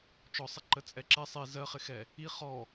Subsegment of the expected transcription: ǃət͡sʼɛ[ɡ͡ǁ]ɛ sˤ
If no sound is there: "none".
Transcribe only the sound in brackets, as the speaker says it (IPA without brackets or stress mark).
ǁ